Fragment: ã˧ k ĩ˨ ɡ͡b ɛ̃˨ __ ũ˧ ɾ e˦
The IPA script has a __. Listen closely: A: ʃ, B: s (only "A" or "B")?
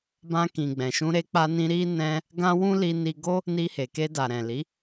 A